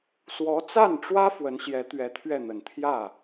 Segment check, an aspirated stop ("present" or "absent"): present